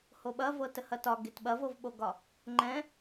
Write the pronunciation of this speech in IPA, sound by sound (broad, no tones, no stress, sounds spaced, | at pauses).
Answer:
h o ɓ ɐ v ɤ t ə h ɐ t ɒ ɡ e t ɓ ɐ v ɤ v ɓ o ɡ ɒ | ŋ͡ǃ ɛ̃